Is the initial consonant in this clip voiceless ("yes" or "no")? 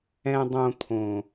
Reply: no